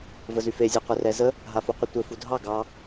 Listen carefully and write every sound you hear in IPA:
vəzyfe zʲeqʷerɛzə | ɦafuqʷətʷɘ fudʱɑ ɡɑ

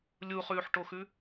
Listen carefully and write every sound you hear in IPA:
lʲuχʉːħʈoxʉ

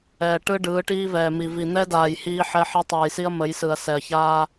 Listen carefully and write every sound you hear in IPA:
ɛː˨ʈɯ˦ ɖɯː˨˦ʈiː˦vɛː˨mi˨ vi˨n̪ɛ˦daː˨j hiː˦ħɛ˦ħɛ˦ tˤɯː˨jsi˦ɐ̯mə˨˦j sɯ˨ɐ̯ sɛ˨ɐ̯çaː˦

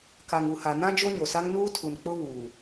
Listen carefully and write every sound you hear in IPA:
ka˨ŋu˨ha˨nã˦ d͡ʒo˦ɲo˨sa˦ŋ nuː˦tʰu˨n k͡pʊ˦ βuː˨

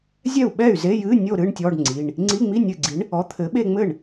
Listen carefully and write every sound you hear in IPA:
zʲɛ˥˩u̯ɓɛ˥˩y̯ze˧˥˧jɨ˧˥˧ nʲo˥˧ ɾɨ˧˥˧ɳtʲɔ˧˥˧ɖŋ͡ǀi˩˧˩ɳ | ŋ͡ǀi˧˥˧ŋ͡mi˧˥˧nʲɨ˧˩ɡ͡ǀi˨˥ɳ | ɔ˨˥t̪ʰɘ˨˥ɓe˥˧ŋ͡mɘ˥˩ɳ

